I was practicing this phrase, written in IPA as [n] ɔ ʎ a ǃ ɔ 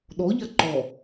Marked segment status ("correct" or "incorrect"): incorrect